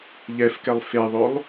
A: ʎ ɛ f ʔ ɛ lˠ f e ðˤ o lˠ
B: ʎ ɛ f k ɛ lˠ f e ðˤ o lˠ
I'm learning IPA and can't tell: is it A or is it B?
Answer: B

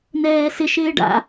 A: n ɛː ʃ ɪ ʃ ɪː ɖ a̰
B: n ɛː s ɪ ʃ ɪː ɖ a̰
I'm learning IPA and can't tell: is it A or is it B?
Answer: B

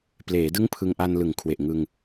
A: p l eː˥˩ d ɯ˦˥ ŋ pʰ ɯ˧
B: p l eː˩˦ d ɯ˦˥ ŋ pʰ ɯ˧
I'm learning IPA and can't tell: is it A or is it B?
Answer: B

